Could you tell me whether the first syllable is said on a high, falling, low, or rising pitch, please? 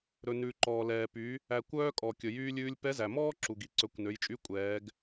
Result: low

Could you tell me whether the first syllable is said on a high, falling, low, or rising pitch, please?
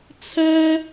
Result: high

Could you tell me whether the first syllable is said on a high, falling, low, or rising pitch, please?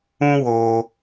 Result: high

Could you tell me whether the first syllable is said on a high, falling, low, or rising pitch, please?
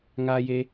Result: high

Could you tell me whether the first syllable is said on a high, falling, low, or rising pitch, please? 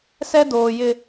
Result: high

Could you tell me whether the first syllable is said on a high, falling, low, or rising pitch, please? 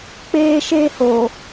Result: high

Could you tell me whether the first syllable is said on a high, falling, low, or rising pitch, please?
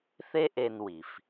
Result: high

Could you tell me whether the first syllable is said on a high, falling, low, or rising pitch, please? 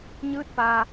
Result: rising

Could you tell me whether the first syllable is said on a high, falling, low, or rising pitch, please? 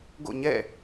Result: falling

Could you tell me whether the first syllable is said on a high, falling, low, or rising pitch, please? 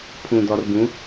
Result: low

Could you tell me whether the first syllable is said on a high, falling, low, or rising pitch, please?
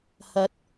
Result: rising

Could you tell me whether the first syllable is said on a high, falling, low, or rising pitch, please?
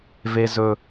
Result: low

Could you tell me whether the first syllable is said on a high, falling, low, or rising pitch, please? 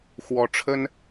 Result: rising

